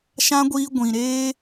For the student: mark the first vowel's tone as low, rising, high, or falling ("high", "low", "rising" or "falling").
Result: high